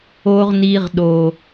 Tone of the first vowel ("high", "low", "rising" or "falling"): low